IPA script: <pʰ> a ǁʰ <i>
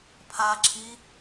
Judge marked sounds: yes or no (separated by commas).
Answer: yes, yes